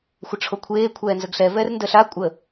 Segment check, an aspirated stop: present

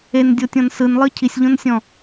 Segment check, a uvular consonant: absent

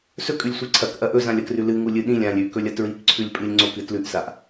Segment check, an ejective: present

